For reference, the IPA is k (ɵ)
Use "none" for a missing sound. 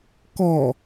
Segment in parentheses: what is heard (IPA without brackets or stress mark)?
ɔ